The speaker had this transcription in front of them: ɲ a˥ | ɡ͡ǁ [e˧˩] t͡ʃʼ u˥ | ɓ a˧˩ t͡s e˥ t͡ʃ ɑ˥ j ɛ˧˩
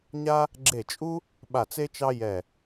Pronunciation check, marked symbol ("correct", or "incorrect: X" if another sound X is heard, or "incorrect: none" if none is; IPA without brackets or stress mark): correct